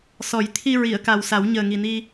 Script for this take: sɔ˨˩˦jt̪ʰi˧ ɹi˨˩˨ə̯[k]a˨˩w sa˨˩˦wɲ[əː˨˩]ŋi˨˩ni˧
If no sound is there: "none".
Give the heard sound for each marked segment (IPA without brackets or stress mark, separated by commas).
k, əː˨˩